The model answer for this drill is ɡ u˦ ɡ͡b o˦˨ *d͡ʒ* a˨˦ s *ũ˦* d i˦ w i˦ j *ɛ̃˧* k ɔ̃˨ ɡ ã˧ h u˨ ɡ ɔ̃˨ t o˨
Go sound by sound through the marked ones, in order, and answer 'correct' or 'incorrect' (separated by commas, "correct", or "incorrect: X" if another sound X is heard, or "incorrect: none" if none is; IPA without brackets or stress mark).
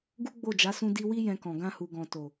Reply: correct, correct, correct